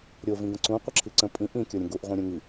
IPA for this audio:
ɾʲ o v ĩ ɡ ə̃ ǀ ũ qʷ ə ǁʰ i ǀ ə̃ pʼ ĩ ʔ ĩ kʲ o ɾʲ ə̃ ɡ u ʔ ʁʷ ĩ ɾʲ ũ ŋ i

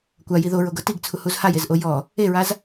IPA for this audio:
kʷ a j i ð o ɹ o ɡ ɤ t i ɡ t͡sʰ u h u z h a j e z ʔ o j ɔ | e ɹ a z

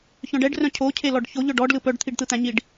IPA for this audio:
ç œ̃ ɖ ɛ ɖ r œ̃ cʰ o cʰ e l ɔ ɖ ç o ʎ œ ɖ ɔ ɖ l ɯ p œ ɖ t̪ʰ i ɖ t̪ ɯ t̪ æ̃ ɲ i ɖ

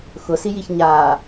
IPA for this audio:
x ʊ s i j i ç ɲ a

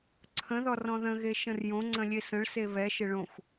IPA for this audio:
ǀʰ ə̃ ð ɔ r ɔ̃ ð ə̃ ɣ e ʃ ə̃ r j õ ŋ͡ǀ ə̃ lʲ e s ə̃ ɭ s e β ɛ ʃ ɪ ɭ õ xʷ

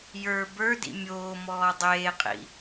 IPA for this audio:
j ə˞ b ə˞ d ḭ mʲ oː m ɔː dˤ eː qʼ ḭ

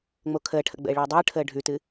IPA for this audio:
ŋ͡m o kʰ əː ʈʰ ə̰ ɡ͡b ə̰ e̯ ɭ əː dˤ ɯː ʈʰ əː ɖʱ ʉ t ɨ

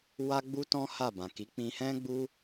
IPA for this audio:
w a˦ ɡ͡b u˦ t ɔ̃˦ h a˦˨ b ã˨ k i˨˦ k͡p ĩ˧ h ɛ̃˦ ɡ͡b u˦

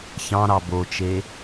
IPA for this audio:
ç ɑ̃ ɾ ɑ b o t͡ʃ e

